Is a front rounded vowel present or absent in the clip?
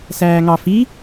absent